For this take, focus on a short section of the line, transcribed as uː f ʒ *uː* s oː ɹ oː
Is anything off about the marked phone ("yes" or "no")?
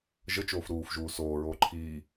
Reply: no